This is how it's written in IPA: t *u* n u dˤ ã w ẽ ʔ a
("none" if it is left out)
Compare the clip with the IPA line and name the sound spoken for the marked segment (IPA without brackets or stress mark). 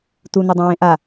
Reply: u